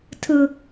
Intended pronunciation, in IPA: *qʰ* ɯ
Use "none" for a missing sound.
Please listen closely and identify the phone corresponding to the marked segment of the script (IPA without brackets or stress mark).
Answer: tʰ